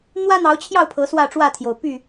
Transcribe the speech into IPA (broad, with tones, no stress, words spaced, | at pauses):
n̪wä˦n̪ɑ˨˦ʊ̯t͡ɕʰjɑ˥˨ʊ̯ pʰɤ˨˦swä˥˨ʈ͡ʂwä˥˨t̪ʰjo˩ʊ̯ py˥˨